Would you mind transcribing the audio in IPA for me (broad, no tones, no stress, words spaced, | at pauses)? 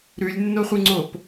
ɾʉlʲnːoχʷɨŋ͡ǀop